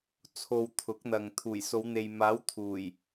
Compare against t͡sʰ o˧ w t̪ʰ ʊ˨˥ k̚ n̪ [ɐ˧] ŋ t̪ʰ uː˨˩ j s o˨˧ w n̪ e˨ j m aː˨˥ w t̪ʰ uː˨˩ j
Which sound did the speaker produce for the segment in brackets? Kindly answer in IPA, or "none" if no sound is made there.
ɐ˨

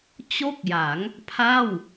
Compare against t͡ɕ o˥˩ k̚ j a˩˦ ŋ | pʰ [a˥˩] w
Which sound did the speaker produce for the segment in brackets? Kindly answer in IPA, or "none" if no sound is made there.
a˥˩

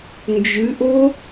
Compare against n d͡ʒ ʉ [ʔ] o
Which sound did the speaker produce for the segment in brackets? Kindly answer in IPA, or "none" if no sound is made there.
ʔ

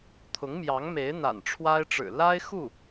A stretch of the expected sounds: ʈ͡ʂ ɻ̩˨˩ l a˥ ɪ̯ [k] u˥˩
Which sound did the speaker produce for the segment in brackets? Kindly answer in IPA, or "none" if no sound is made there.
x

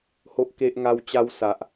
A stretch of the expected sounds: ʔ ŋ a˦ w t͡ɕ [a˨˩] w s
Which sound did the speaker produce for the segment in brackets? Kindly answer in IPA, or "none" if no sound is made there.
a˦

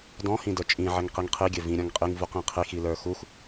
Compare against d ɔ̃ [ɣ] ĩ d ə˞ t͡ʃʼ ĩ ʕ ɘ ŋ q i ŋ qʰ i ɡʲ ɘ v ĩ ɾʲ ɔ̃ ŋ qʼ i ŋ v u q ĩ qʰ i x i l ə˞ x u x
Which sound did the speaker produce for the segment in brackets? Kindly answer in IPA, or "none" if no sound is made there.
h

